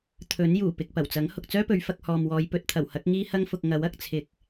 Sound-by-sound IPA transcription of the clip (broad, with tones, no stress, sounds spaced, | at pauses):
t̪ʰ ɵ˨˥ n j uː˨˩ p ɪ˨ k̚ p ɐ˨˩ w t͡s ɐ˨˥ ŋ h ʊ˨ k̚ t͡s œː˥ p ɵ˨˧ ɥ f ɐ˧ k̚ h ɔː˨ m w ɔː˨˧ j p ɵ˨ t̚ t̪ʰ ɐ˨˩ w h ɐ˨˥ k̚ ŋ iː˥ h ɐ˥ ŋ f ʊ˧ k̚ ŋ ɐ˨˥ w ɐ˧ k̚ t͡sʰ ɪ˧ k̚